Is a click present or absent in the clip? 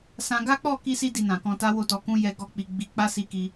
absent